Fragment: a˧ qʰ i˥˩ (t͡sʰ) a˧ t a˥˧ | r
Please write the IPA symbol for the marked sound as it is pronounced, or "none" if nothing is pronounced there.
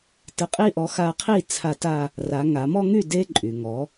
t͡sʰ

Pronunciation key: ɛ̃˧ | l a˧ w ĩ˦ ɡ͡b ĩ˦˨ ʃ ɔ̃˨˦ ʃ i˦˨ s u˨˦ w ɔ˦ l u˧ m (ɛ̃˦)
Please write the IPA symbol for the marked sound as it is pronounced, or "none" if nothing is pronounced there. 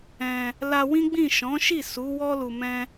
ɛ̃˦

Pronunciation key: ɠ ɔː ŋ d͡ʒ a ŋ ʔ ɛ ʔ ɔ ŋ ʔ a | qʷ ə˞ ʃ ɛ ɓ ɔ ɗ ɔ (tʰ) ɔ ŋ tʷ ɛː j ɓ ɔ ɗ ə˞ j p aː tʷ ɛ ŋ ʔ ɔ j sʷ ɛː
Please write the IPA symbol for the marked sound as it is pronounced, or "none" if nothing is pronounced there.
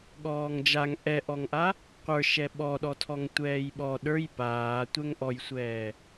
tʰ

